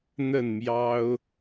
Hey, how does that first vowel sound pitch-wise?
falling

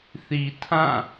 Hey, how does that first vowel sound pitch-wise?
low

